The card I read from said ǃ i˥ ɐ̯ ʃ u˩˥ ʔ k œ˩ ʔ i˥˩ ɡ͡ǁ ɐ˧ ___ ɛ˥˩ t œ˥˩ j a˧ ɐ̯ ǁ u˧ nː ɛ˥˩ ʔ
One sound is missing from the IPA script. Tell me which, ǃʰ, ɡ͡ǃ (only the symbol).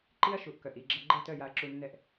ɡ͡ǃ